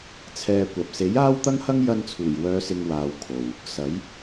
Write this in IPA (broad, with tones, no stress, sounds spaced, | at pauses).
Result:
t͡sʰ ɛː˧ kʷ ɐ˨ p̚ s e˨˥ j aː˥ w t̪ ɐ˥ ŋ h ɐ˥ ŋ j ɐ˧ n t͡sʰ uː˨˩ j w œː˨˧ s ɪ˨ ŋ w aː˧ w kʰ o˨ w | s ɐ˨˥ j